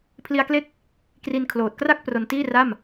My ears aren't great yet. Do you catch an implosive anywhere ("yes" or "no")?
no